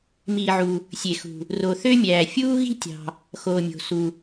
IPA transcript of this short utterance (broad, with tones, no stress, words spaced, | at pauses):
miː˩ʕu˩ | sʲe˩xṳ˩ | ro˩ θø˦mʲæː˩ fʲuː˦ ɣi̤˦tʲɑ̤˩ | xoː˩mʲo̤˩su˩